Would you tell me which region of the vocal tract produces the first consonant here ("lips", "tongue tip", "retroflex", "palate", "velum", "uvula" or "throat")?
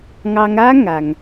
velum